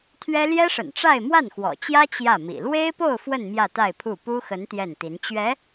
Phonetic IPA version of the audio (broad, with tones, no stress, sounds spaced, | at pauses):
t̪ʰ ɥ ɛ˥ l j ɛ˥ ʂ ə̰˨˩ n ʈ͡ʂ a˥˧ ɪ̯ m w a˥˩ n x w ɔ̰˨˩ t͡ɕ j ä˥ t͡ɕ j ä˥˩ m ḭ˨˩ l w e˥ ɪ̯ p o˥˧ ʊ̯ f w ə˥˧ n m j ä˥˧ t̪ a˥˧ ɪ̯ pʰ u˥˩ p u˥ x ə˧˥ n t̪ j ɛ˥˩ n t̪ i˧˥ n t͡ɕ ɥ ɛ˧˥